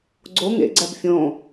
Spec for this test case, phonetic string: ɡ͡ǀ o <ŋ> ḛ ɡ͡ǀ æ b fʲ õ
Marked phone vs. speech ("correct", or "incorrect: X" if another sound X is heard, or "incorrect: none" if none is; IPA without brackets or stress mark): correct